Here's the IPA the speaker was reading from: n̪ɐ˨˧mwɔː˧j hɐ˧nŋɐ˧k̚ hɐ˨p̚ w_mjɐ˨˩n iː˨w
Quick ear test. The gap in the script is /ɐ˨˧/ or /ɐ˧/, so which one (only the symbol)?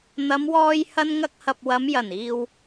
ɐ˨˧